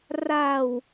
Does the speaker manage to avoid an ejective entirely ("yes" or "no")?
yes